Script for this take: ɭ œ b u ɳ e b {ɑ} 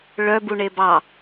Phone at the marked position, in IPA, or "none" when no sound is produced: ɑ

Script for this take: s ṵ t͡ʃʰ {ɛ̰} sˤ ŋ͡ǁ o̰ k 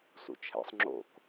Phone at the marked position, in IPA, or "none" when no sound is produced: ɛ̰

